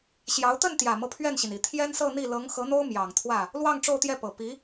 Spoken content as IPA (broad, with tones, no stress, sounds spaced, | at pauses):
ɕ j ɑ˧˥ ʊ̯ t̪ ə˥˩ n t̪ j ä˨˩ m ɤ˦ pʰ ɥ ɛ˥˩ n ɕ i˩ n i˨˩ t̪ʰ j ɛ˥ n s ɤ˥˧ n̪ i˥˩ l ɤ˧˥ ŋ x ɤ˧˥ n̪ o˥ ʊ̯ m j ɑ˨˩ ŋ t̪ʰ w ä˥˩ | l w ɑ˥˧ ŋ ʈ͡ʂ o˥˧ ʊ̯ t̪ j ɛ˥˩ p ɤ˨˩ p i˧˥